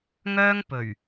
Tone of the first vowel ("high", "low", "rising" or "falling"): high